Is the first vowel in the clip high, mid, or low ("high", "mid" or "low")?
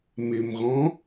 high